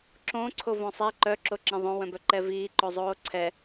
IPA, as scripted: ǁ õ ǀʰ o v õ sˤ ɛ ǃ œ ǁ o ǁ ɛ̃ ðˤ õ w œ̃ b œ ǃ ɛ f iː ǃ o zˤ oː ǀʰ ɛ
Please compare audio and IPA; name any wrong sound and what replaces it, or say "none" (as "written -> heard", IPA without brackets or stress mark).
f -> v